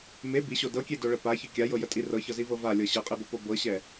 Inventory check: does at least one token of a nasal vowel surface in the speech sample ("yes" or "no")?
no